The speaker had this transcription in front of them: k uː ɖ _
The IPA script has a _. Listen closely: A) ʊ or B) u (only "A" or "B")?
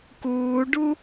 B